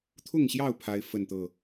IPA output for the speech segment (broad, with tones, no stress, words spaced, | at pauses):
t̪ʰʊ˥˨ŋɕjɑ˥˨ʊ̯ pʰa˦ɪ̯ fə˥˨nt̪ɤ˥˨